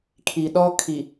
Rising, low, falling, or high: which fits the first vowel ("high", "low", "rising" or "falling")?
low